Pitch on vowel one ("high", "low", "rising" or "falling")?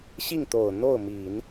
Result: falling